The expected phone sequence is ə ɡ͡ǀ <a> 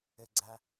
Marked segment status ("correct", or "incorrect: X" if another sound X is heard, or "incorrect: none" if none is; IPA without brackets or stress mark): correct